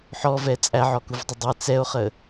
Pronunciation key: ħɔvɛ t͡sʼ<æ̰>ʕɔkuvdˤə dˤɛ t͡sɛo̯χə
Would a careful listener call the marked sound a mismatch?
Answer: yes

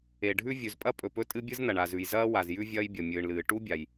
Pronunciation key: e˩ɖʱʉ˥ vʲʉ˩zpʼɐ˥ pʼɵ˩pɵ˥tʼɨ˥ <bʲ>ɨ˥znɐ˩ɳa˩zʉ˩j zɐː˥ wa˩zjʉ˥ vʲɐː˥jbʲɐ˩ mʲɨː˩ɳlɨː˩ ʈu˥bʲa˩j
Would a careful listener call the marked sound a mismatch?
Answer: no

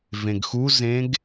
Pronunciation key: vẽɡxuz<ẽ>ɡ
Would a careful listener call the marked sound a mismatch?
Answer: no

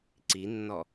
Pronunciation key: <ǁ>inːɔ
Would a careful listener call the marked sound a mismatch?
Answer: yes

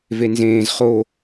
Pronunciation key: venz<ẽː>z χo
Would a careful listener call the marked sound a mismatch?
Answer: no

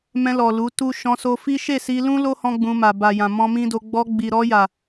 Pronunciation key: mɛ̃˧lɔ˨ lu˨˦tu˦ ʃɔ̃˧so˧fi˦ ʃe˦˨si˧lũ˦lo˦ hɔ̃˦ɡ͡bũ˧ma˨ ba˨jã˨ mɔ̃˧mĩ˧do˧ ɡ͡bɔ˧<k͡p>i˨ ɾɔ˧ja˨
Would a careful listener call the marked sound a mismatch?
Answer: yes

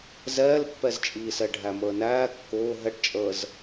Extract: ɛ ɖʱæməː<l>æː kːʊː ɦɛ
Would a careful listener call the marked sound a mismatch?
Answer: yes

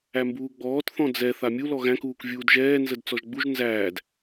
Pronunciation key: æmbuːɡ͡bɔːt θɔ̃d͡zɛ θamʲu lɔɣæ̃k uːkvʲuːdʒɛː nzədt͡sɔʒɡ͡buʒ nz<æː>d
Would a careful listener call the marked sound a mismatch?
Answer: no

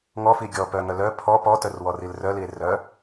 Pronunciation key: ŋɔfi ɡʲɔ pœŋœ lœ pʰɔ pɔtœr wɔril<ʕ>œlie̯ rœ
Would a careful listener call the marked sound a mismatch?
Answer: yes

